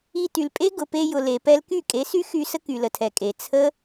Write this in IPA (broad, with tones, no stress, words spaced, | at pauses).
i˧ty˨lpʼe˦ ɡʊ˨pe˧jʊ˨ le˨pɛ˧l ky˦˨kʼe˨˦sy˦ xy˧sə˦ ky˨lə˨tʰɛ˨kʼe˨ t͡sʰə˦